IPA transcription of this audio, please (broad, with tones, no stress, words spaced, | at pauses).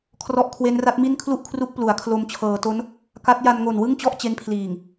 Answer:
kʰrɔ˦˥ʔkʰwe˦˥n ra˦˥t̚mi˥˩n kʰlu˥˩ʔkʰru˦˥k̚ plu˩˦a̯kʰlo˧m t͡ɕʰɤː˩˦to˦˥n | ka˦˥t̚ ja˧nŋo˨˩n wɯ˥˩ŋt͡ɕɔ˥˩ʔ t͡ɕe˦˥npʰliː˨˩ŋ